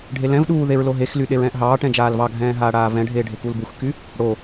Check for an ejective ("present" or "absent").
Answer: absent